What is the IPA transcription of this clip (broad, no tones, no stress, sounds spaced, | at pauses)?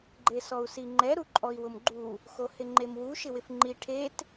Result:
ɡ͡ǃ e s ɔ u̯ s i ŋ͡ǃ ɛ ɾ u ǃʼ ɔ i̯ w ʊ m ɡ͡ǃ u | x o h ɪ ŋ͡ǃ e m w u ʃ ɪ w ɪ f ŋ͡ǃ i ʈʰ e t